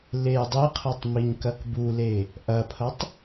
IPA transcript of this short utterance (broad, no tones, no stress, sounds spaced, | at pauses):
l e j dˤ i qʰ ɤ tˤ m i ɲ k ɐ k b u l e | ʔ ɐ pʰ ɐ tˤ